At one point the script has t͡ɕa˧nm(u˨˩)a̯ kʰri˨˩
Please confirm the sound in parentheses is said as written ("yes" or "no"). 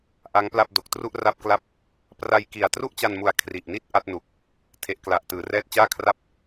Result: yes